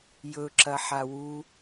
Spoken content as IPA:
jɵ ǁɐħawu

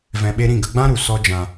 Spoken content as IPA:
vɛ̃˧ɓe˦ ɾĩ˦˨ɡə˧ɡ͡bã˦ ɾu˨sɔ˦d͡ʒã˧

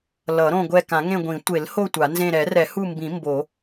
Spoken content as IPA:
lʌ˨˩˦ɾõ˦˨ɡʷɛ˦˨ kã˨˩˦ŋẽ˦˨ɡʷĩ˨˩˦ tʷe˨˩˦lho˦˨ tʷa˨˩˦nzẽ˦˨ ɾɛ˨˩˦rɛ˨˩˦hu˦˨mbĩ˨˩˦ mbo˨˩˦

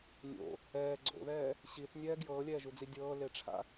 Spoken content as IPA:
nʲo̰ | ɛː ɡ͡ǀo̰ðɛː | ɕiθnʲɛː ɡjɤːlʲɛːʒud͡zi dʲɤːleʈ͡ʂʰa̰

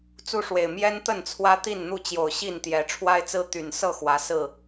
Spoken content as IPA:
t͡su˦ʂwe˨˩ɪ̯ mjɛ˦nt̪ə˥˨nt͡sʰwä˦ t̪i˥˨nn̪u˥˨t͡ɕjo˨˩ʊ̯ ɕi˥˨nt̪jɛ˨˦ ʈ͡ʂʰwa˦ɪ̯t͡sɹ̩˦ t̪y˨˩nsɤ˥˨ xwä˨˦ sɹ̩˥˨

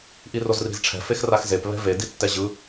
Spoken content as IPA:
ʔirozri̤zʈ͡ʂʰɛ̤ fexraxzep βɛ̤ve ditːɛʑɯ

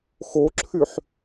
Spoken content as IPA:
xoǁʰyħ

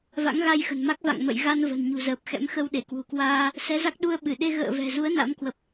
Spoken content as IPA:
va̰˧˥ŋɣa˧jxə̤˨˩nma˦˥k̚ va̰˧˨ŋmə̰˧˨j ɣa˧n və̤˨˩n ɲṳ˨˩zəː˨˩p̚xɛ̰˧˥m xə˧wɗe˧˩kwṳ˨˩kwaː˧ | sɛ˨˦za˦˥k̚ ɗu˧ə̯ɓɨ˧˩ɗe˧ ɣə̰ː˧˨vɛ̤˨˩zu˨˦ə̯ na̰˧˥mkwə˨˩p̚

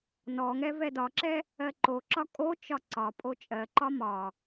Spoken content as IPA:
nɔŋɛ vɛdɒǁɛ | ɜǃoǁɒ kʼot͡ʃɒ ǀɒpʼo t͡ʃʼɜǃɒ mɒ

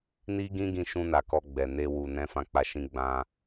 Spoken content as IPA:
ni˦ɡĩ˦ ɡĩ˧ʃũ˧na˨ kɔ˧ɡ͡bɛ˨ ne˧ wu˨ nɛ̃˨˦fã˧k͡pa˧ʃĩ˧ ɡ͡bã˧

